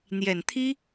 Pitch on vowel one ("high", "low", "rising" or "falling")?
low